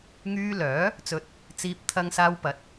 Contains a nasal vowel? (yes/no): no